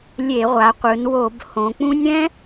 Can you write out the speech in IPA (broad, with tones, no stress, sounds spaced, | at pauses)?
lʲ e˧˩˧ ʁʷ a˩˧ qʷ ɯ˩˧ n w o˧˩˧ b h õ˩˧ k͡p ũ˦˥ nʲ ɾ ɛ̃˦˥